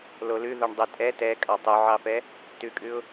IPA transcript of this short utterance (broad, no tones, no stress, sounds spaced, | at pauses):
l o l ʉ ð o ɳ dˤ u tʼ ɛ t ɛ kʼ ɑ tˤ u ʕ ɑ f ɛ | t ʉ kʼ ʉ ʊ̯